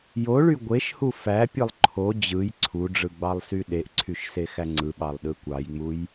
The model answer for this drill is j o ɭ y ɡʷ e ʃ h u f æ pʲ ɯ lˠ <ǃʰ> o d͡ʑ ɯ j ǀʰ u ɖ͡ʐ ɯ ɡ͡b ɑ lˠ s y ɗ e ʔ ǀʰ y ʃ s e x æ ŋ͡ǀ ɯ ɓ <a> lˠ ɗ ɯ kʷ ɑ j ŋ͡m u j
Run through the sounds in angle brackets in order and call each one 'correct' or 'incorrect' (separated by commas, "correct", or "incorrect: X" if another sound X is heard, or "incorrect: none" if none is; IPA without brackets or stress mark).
correct, incorrect: ɑ